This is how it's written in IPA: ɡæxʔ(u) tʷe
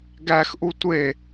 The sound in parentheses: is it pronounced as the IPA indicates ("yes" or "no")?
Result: yes